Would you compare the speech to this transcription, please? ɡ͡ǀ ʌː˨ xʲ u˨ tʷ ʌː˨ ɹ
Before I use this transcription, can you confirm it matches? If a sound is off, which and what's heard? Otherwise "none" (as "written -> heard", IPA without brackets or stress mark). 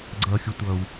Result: ɹ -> w